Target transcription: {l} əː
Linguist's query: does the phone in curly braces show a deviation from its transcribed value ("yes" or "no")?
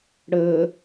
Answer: yes